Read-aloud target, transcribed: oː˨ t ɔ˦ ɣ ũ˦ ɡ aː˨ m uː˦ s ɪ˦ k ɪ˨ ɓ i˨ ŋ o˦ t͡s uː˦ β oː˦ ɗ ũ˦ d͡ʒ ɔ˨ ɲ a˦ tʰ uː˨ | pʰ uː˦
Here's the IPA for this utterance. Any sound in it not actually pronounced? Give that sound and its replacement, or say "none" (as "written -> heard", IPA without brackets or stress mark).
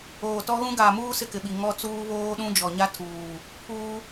o˦ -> ɔ˦